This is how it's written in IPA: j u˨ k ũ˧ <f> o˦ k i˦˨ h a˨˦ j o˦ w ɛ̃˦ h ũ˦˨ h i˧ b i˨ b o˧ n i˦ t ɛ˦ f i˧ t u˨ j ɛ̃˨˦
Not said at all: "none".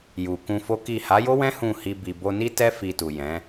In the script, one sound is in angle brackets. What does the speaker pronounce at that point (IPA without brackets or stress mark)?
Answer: f